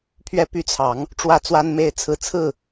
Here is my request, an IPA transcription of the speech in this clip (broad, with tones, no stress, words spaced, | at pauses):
pʰɥɛ˦py˦ t͡sʰɑ˨˦ŋ | ʈ͡ʂwä˦t͡swa˦nme˥˨ɪ̯t͡sʰɹ̩˦ t͡sʰɹ̩˥˨